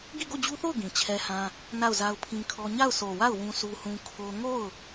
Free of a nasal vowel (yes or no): no